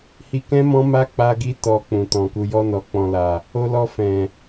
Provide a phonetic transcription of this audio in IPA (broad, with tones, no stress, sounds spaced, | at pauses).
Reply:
h i˧ k ɛ̃˦ m ɔ̃˦ m a˦ k͡p a˧ ɡ i˧ t ɔ˨ k͡p ũ˨ t ɔ̃˨ k u˧ j ɔ˧ n ɔ˨ k͡p ɔ̃˨ l a˨ | o˧ l ɔ˧ f ɛ̃˨